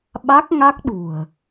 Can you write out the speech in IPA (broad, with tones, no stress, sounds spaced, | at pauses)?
ɓ a˦˥ k̚ ŋ a˦˥ k̚ ɗ ṳ˨˩ ə̯